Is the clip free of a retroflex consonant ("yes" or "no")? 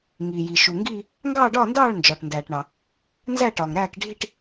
no